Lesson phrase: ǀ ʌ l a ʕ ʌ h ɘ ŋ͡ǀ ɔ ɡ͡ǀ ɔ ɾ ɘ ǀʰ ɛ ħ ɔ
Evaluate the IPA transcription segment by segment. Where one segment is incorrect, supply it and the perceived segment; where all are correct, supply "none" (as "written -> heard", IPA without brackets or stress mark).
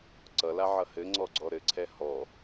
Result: ħ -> h